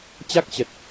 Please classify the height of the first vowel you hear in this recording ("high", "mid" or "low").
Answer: low